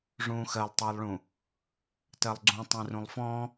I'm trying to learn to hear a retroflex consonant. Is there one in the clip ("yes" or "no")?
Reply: yes